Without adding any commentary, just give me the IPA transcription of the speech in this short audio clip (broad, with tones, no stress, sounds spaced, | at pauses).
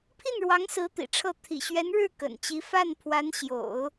pʰ i˥˩ n ɻ w ɑ˧˥ ŋ s ɹ̩˧˥ t̪ ḭ˨˩ ʈ͡ʂʰ ɤ˥˩ t̪ʰ ḭ˨˩ ɕ ɥ ɛ˧˥ n ɻ ɻ̩˥˩ k ə̰˨˩ n t͡ɕ i˧˥ f a˥˩ n pʰ w a˧˥ n ɕ j o̰˨˩˦ ʊ̯